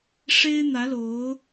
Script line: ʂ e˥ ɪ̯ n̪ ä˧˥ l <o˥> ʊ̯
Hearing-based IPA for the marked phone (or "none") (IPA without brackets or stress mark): o˧˥